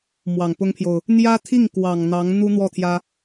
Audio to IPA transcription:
m w ɑ˨˩ ŋ p ʊ˥ ŋ pʰ j o˨ ʊ̯ | n̪ j ä˥ t̪ʰ i˥˩ ŋ k w ɑ˨˩ ŋ n̪ ɑ˧˥ ŋ n̪ u˥ n̪ w ɔ˥˩ t̪ʰ j ä˥

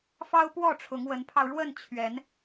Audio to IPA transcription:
f ɑ˦ ʊ̯ p w ɔ˥˨ ʈ͡ʂʰ ʊ˨˦ ŋ w ə˨˦ n pʰ ɑ˧ ʊ̯ ɻ w ə˥˨ n t͡ɕʰ ɥ ɛ˨˦ n

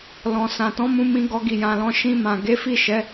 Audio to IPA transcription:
l ɔ̃˨ s ã˨ t ɔ̃˨˦ m ũ˧ m ĩ˧ ɡ ɔ˧ ɡ i˨ j ã˨ l ɔ̃˧ ʃ ĩ˧ m ã˨ ɡ e˨˦ f i˦˨ ʃ ɛ˨˦

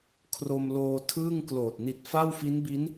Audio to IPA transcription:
kʰ r o˧ m l oː˧ tʰ ɯː˥˩ ŋ k l oː˨˩ t̚ n i˨˩ t̚ f a˥˩ w f i˦˥ n b i˦˥ n

